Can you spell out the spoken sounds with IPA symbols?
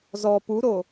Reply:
zɔ puɾo

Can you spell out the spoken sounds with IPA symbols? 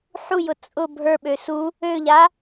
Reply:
ħujʊ t͡sʼʊ bʱə˞ɓø su | øʎa

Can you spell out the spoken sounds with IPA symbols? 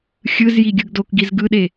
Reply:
xʲɯzji ɡʲɯɡdokɡiz ɡɯɗe

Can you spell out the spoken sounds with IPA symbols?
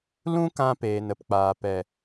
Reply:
lũ˦kã˧peː˨n ə˨pk͡paː˨pɛ˨

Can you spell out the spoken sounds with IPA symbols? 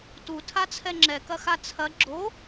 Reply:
tutʰat͡sʰɛ ŋ͡ǁɛkɐxa t͡sʰɐ ɡ͡ǁo

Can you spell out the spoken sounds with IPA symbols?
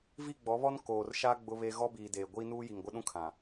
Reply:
vi˦˨ɡ͡bɔ˨˦βɔ˦n koː˨rʃa˦ ɡ͡bʊ˦βe˦ ɣɔ˦biː˨deː˨ ɡʷiː˦nuː˦ji˨ŋ ɡʷɪ˦ɗũ˦kʰã˨

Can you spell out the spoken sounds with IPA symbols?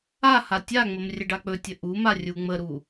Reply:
aha tʲaŋ͡məm rʲəɖak͡pɵtʲə ʔuma rʲuŋ͡məɾu

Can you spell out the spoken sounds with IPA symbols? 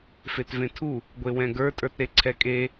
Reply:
fetvẽtʰu | ɡʷewɛ̃ɡə˞ tʼə˞tɾeǀʰɛkʼe

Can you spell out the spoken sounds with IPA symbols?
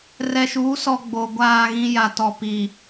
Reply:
rɛ˨ʃu˨˦ sɔ˨ ɡ͡bo˨ɡʷaː˦˨ɣĩ˦ ja˨tɔ˨pi˨

